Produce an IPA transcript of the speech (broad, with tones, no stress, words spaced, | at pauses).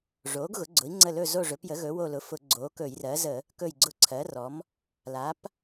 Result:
ʐoː˩˥ɡɣʊ˩˥ɡ͡ǀʊ˩˥i̯ŋ͡ǀə˦˨ lɵ˦˨zo˦˨ ʐɵ˩˥pjə˩˥ɣɵ˩˥wo˦˨ lʊ˩˥fʊ˧˩˧ ɡ͡ǀoː˩˥kɵː˧˩˧jrɜː˩˥ zə˧˩˧ | kɵ˦˨jɡ͡ǀʊ˦˨ǀʰɜ˩˥rɔ˩˥m | la˩˥p